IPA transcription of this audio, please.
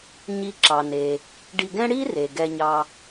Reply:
ɲ i˧ ǁ ɑ˩ n e˩ | ɖ i˧ ɡ ɛ̃˥ ɽ i˥ r e˩ ɡ ɛ˧ ɲ ɑ˧

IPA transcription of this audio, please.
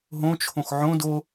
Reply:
ɦ õ t͡ʃʰ õ x ʕ õ d o

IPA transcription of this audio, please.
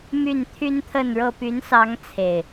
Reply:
m y˥˨ n t̪ʰ y˦ n t̪ʰ ə˥˨ n ɻ ɤ˥˨ p y˨˦ n s ɑ˨˦ ŋ t͡sʰ e˨˩ ɪ̯

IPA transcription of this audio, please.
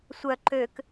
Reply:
sʷ œ ǃ ø k

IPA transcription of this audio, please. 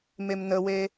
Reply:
m e m n ə w e

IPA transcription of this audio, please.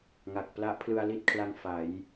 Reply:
ŋ a˨˩ k̚ p l a˦˥ ʔ pʰ l ɯ˧ a̯ l i˦˥ t̚ kʰ l a˧ ŋ f a˩˦ j

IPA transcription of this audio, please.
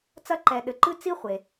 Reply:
t͡s ɐ˦ ǃ ɛ˨ ɗ ɘ˨ ǃ ɨ˥ t͡s i˦ χʷ e˩

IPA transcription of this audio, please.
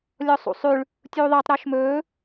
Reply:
lʲ ɔ sˤ ṵ sˤ ʉ ɭ | tʲ uː ðˤ i tˤ ɾ ɔ ʃ m ɵː

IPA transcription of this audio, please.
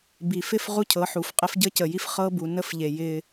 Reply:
b i˨ f ɪ˦ f ʁ u˦ cʰ ɤ˨˦ ħ u˨ f qʼ ɪ˦ f ɟ ə˦ c ə˨ j i˦ f χ ɤ˦ b u˨ n ə˦ f ʎ e˨ j ɪ˦

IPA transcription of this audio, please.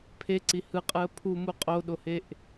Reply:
pʰ e ǀ i h ɯ qʼ ɯ ə̯ pʰ u m u qʼ o ɗ o h e ʔ

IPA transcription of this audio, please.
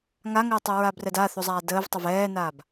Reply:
ŋ a ŋ əː tˤ u ɹ a b r ɛ d a θ u zˤ aː d əː v tˤ ə v ɛː n aː b

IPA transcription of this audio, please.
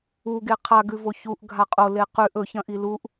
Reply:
u ɡ e qʰ a ɡ ʉ v o ç u ʔ ɡʱ a qʼ o l e q ʉ ʔ ɵ ç ɐ̃ ʔ i l u ʔ

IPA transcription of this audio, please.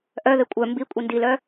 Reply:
ʔ œ ð ɪ kʷʼ œ m b i kʷʼ i n d i l œ

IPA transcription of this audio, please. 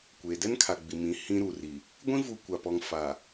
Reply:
kʷ eː˨ d ɛ˦ n kʰ a˨ ɡ͡b i˨ m ĩ˨˦ h ĩ˦ ɾ uː˨ r i˨ | ɡʷ ĩ˦ v u˨ kʷ a˨ p ɔ˨ ŋ f a˨

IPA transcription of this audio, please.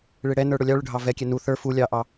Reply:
ɭ ɪ ɽ ɛ n ə˞ ɽ ʊ lʲ ɑ ɭ ʊ ɖʱ ɑ v ɛ kʲ ɛ n u θ ə˞ f u lʲ ɑ ʔ ɑ

